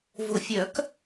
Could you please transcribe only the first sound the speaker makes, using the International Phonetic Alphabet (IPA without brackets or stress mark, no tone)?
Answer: v